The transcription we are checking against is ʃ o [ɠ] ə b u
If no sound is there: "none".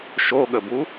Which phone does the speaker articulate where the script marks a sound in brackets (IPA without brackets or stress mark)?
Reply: ɠ